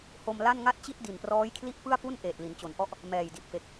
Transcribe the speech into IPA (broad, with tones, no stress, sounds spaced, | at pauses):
h o˧ m l a˥˩ n ŋ a˥˩ t̚ t͡ɕ i˥˩ t̚ d i˨˩ n p r ɔː˦˥ j kʰ l i˥˩ ʔ p ɯ˥˩ a̯ p u˥˩ n ʔ eː˨˩ t̚ l i˩˦ n t͡ɕ o˩˦ n ʔ ɔ˦˥ ʔ | m ɛː˨˩ j d i˨˩ t̚ f e˨˩ k̚